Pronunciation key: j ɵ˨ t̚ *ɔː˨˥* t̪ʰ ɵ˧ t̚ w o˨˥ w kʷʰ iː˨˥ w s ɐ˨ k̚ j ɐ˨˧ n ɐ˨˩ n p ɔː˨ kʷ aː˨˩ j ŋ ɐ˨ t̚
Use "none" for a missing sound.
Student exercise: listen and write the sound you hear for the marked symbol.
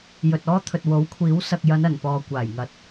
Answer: ɔː˥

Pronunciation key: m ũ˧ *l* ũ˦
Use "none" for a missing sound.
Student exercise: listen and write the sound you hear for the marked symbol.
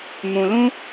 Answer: l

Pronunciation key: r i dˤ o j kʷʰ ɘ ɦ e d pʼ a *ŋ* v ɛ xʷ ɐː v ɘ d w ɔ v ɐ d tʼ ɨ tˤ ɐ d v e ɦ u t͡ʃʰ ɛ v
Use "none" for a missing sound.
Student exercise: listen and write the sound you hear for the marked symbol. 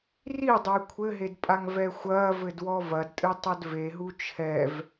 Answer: ŋ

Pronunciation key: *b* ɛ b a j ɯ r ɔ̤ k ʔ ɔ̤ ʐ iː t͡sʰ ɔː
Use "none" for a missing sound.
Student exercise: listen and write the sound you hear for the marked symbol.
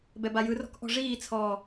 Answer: b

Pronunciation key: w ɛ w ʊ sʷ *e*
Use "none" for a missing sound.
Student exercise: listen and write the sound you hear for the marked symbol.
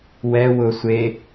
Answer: e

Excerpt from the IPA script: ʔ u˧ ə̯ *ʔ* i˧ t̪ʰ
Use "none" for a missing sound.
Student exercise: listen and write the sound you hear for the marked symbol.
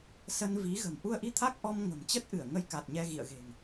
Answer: ʔ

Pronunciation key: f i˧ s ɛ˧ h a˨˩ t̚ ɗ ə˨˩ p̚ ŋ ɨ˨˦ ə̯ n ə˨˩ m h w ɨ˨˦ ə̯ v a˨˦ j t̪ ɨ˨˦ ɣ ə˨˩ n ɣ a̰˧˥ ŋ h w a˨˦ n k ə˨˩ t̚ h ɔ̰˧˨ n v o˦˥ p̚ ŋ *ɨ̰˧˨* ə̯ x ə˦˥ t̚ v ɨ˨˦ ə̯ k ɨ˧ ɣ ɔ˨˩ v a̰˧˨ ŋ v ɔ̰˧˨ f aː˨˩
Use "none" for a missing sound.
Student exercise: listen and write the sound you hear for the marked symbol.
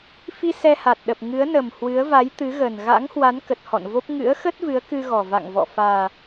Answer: ɨ̰˧˥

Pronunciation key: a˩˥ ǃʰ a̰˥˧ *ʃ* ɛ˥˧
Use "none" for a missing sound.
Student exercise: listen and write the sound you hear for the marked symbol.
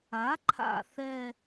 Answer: θ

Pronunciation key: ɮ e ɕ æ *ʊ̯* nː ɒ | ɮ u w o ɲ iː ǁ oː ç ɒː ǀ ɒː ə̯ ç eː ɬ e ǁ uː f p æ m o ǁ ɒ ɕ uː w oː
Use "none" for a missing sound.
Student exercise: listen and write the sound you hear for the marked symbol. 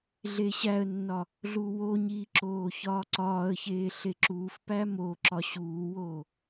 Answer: ə̯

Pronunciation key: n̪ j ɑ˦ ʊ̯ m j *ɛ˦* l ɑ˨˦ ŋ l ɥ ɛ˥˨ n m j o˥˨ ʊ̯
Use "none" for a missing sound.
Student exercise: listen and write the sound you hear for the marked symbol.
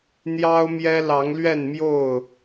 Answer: ɛ˦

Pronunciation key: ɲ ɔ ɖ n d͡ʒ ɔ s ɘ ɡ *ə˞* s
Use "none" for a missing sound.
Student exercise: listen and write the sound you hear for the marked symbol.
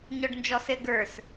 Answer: ə˞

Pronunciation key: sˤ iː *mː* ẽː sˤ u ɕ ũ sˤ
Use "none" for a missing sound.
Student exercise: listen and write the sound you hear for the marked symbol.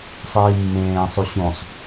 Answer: mː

